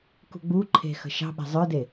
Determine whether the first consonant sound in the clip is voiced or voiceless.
voiceless